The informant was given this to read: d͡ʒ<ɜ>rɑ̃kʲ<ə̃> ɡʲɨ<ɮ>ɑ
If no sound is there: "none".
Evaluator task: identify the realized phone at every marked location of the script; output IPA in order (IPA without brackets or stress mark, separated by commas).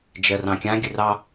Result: ɜ, ã, r